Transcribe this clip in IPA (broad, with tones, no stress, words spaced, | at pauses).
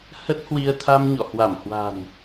hə˦˥t̚hwi˧ə̯t̪ʰa˧m ɲɔ̰˧˨hwa˧˩mhwa̤˨˩n